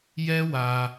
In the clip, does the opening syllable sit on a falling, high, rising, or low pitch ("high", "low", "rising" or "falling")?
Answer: high